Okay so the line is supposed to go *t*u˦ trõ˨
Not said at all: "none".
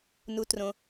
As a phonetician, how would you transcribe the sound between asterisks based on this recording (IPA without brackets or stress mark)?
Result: n